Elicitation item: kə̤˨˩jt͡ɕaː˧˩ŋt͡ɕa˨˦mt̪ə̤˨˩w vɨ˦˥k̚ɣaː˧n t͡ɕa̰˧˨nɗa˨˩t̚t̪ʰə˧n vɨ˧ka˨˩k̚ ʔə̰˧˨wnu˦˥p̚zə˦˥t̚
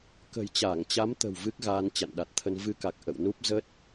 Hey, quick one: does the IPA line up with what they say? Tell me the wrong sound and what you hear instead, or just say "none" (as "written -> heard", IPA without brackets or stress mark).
none